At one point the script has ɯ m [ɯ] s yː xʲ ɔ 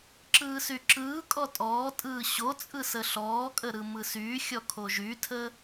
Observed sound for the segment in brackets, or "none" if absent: ɯ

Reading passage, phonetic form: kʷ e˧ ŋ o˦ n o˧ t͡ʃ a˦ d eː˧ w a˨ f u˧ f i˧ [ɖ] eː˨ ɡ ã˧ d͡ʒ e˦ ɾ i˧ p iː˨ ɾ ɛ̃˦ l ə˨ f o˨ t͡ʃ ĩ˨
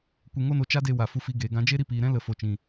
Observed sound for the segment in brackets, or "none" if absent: ɡ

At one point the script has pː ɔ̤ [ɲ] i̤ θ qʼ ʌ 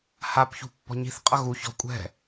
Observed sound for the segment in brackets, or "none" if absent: ɲ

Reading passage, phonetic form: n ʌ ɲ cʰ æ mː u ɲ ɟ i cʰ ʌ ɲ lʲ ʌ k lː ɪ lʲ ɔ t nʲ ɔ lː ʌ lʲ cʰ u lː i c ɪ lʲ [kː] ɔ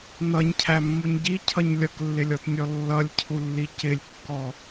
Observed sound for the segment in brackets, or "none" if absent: kː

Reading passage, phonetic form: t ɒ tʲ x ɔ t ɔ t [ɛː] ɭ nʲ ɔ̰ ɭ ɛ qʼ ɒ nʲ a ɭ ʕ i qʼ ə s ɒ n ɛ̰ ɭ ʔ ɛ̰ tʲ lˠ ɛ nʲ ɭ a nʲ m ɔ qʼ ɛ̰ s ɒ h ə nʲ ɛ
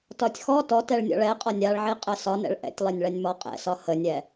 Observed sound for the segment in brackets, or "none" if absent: ɛ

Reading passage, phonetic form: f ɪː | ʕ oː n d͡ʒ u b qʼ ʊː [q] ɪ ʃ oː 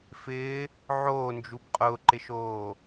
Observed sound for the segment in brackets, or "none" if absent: ǃ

